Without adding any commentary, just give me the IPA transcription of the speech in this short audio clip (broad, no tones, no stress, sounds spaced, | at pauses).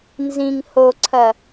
n z ĩ ŋ h o ǀʰ ɐ